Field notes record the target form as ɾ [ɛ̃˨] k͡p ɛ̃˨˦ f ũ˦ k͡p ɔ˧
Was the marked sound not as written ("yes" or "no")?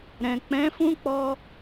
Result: no